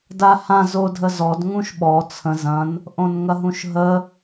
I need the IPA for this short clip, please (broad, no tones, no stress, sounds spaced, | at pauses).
d a h ã z o dʱ ə z ɔ d ŋ ũ ʃ ɓ ɔ t͡sʰ ə̃ z ɐ̃ n | ʔ õ n ŋ ɐ ɦ ũ ʃ ɦ ə